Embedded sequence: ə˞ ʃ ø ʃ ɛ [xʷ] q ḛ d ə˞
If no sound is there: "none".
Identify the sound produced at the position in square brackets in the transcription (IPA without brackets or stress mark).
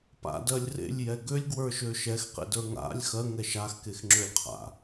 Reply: x